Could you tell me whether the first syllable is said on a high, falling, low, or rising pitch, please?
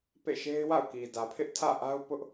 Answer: falling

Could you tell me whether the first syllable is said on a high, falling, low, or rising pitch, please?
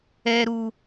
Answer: high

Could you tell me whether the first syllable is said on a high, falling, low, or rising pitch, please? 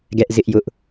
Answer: high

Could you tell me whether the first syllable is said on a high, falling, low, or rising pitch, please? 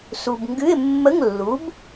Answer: low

